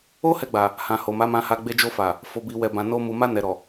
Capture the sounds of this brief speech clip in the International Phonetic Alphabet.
o˦ h ɛ˧ ɡ͡b a˨ | h ã˨ h o˨ m a˨˦ m ã˧ h a˧ ɡ͡b e˧ d͡ʒ o˧ f a˨ | f o˨ b i˨ w ɛ˨ b ã˨ n o˧ m u˨ m a˧ n ɛ˨ ɾ ɔ˨

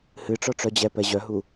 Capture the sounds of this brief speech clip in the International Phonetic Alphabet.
h ɨ ʈ͡ʂ ɔ ʈ͡ʂ œ d͡ʑ ɛ p ɛ ʑ œ ɦ u

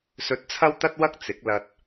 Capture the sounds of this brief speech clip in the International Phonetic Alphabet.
s ɵ˧ t̚ t͡sʰ ɐ˥ w t̪ ɐ˥ t̚ w ɐ˥ k̚ t͡s ɪ˨˥ k̚ l ɐ˧ t̚

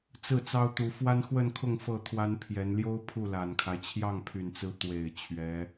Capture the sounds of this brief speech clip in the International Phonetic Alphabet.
t͡s ɹ̩˥˩ t͡s ɑ˥ ʊ̯ t̪ u˧˥ f w a˥ n x w ə˥˧ n kʰ ʊ˥˧ ŋ f ɤ˥˩ t̪ʰ w a˥ n pʰ j ɛ˧˥ n l j o˥ ʊ̯ pʰ u˥˩ l a˨˩ n kʰ a˦ ɪ̯ t͡ɕʰ j ɑ˥˩ ŋ pʰ y˨˩ n t͡s ɹ̩˧˥ t̪ w e˨˩ ɪ̯ t͡ɕʰ ɥ ɛ˧˥

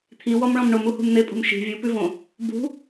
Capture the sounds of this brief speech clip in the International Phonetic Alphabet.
t̪ʰ i w ɔ m ɭ ɔ̃ m ɳ o m u h ṳ m n̪ e pʼ ṳ m ʃ i̤ vʲ u p ʉ v õ | b ṳ

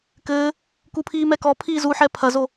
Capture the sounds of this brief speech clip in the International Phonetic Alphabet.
k ɘː | k u pʰ iː m ɛ k ɔ pʰ iː z u ħ ɛ pʰ ɐ z o

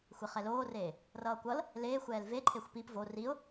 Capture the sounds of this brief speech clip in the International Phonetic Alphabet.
xʷ e χ ɛ l oː r eː | r ʌː kʷ ʌ l | l eː xʷ ɛː l v e ǃʰ e xʷ p i p v o r i ʊ̯

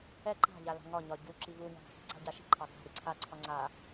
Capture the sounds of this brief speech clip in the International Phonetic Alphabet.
ɛ ǃ a̤ ʎ a l a̤ ŋ ɒ ɲ ɒ ɟ u ǁ i v u ɲ a̤ ɡ a̤ x i̤ ǀ a̤ ɟ a ʃ i̤ ǃʰ ɑ ɡ a̤ ɾ i ǀʰ a ǀʰ ɒ ŋ͡ǀ a

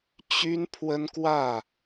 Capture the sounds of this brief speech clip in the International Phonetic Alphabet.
t͡ɕ y˦ n pʰ w ə˦ n k w ä˥˨

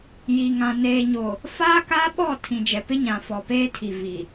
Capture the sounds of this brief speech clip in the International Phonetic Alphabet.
j i˨ ŋ ã˨ n eː˨ ɲ o˨ | f aː˦ k aː˦ ɓ ɔ˦˨ tʰ ĩ˨ d͡ʒ ɛ˨ p ɪ˦ ɲ ã˨ f ɔ˨ p eː˦ tʰ i˨ v i˨

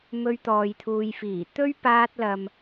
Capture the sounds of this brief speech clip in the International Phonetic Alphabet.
m ɵ˧ ɥ t̪ ɔː˨ j t̪ʰ uː˨ j f iː˨˩ t̪ ɵ˥ ɥ p aː˧ t̚ l ɐ˨ m

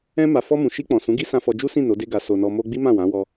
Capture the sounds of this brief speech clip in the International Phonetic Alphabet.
ɛ̃˦ m a˧ f ɔ˧ m ũ˨ ʃ i˧ k͡p ɔ̃˨ s ũ˨˦ ɡ i˦ s ã˧ f ɔ˧ d͡ʒ u˦ s ĩ˦˨ n o˨˦ d e˦ ɡ a˧ s o˧ n ɔ˧ m o˦ ɡ͡b i˦ m ã˦˨ w ã˨˦ w ɔ˧

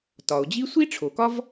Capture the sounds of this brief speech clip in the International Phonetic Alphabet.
t ɒ˩ o̯ d͡ʑ i˥ sʷ i˥ ʈ͡ʂʰ o˩ k ɒ˥ v

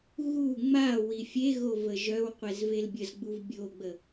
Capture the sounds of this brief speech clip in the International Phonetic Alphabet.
ɣ u ŋ͡m a w i fʲ e ɣ o v ə ʒ œ w qʷ ɛ z v e l bʲ ə z ɡ͡b u v bʲ o ɡ͡b ə

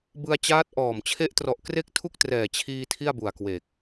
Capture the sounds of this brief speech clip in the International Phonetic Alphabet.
b ɯ˧ a̯ t͡ɕ aː˦˥ t̚ ʔ ɔː˨˩ m t͡ɕʰ e˦˥ ʔ t r ɔ˨˩ ʔ k r e˥˩ k̚ tʰ u˥˩ k̚ t r ɛː˨˩ t͡ɕʰ iː˧ tʰ i˥˩ a̯ b u˨˩ a̯ k w e˨˩ k̚

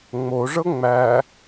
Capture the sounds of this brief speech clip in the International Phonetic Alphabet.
ŋ͡m o ʐ ɤ ŋ͡m æ

